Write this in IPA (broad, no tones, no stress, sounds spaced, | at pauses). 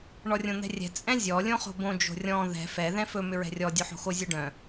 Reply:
ɳ ɔ rʲ õ n̪ ɛ̤ rʲ ɛ̤ t͡sʼ ɛ̃ zʲ ɔ lʲ õ χ o̤ b õ d͡ʒ o̤ rʲ ɔ̃ ð ɛ̤ f ɛ ð ɛ̃ f ɵ m ʏ ɹ ɛ̤ rʲ ɔ dʲ o ħ o̤ x o zʲ o ɖ œ̃